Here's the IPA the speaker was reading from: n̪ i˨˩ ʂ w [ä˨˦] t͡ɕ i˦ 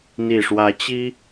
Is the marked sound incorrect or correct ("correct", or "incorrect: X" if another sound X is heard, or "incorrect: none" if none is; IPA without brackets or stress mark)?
correct